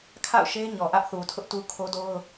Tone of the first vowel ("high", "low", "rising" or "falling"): falling